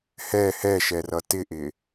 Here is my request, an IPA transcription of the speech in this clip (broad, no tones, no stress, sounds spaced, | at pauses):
h ɛ h ɛ ʃ ɛ r ʌ t ɪ ʔ ɪ